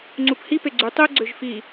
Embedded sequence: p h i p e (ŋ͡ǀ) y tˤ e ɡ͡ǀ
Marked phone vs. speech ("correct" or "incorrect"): incorrect